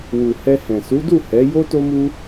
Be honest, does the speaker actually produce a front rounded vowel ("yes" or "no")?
no